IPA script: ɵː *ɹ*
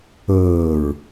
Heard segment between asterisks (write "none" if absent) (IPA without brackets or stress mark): ɹ